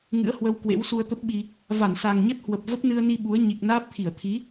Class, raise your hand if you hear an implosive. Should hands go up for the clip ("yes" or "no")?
yes